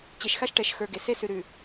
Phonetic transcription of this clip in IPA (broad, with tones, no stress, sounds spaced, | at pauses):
t͡ɕ e˨ ʃ x a˦ ʃ ʈ ɛ˨ ʃ x ə˞˨ ɡ e˨ s e˦ s ʉ˨ ɾ ʉ˨